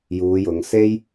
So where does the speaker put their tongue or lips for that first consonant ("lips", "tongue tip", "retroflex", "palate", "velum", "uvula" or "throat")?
palate